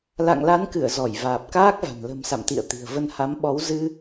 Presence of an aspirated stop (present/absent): absent